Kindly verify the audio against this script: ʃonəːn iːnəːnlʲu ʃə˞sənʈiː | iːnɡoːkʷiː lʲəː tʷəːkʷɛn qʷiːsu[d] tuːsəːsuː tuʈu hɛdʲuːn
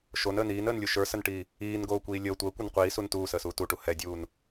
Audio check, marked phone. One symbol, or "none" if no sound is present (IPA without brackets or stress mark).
n